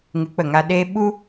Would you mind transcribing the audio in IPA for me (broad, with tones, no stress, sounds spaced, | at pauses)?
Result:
ŋ ɨ˨˦ k͡p ə˨ ŋ a˧ ɗ e˧ ɓ u˦